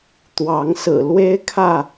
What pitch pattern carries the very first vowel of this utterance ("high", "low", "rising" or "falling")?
rising